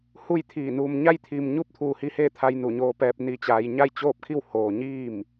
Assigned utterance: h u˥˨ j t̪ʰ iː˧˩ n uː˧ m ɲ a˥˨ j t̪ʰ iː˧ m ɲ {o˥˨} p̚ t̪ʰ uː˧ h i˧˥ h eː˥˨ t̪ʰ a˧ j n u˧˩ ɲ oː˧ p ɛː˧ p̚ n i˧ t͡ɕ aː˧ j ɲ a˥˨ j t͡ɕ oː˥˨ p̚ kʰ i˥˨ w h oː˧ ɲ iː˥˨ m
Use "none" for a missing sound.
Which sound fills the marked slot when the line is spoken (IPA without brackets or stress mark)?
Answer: u˥˨